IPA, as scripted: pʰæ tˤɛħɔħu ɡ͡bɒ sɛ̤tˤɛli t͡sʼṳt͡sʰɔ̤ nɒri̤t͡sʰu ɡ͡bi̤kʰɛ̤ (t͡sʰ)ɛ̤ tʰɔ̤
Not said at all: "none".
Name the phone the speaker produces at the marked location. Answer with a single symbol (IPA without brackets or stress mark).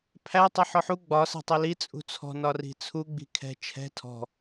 t͡ʃʰ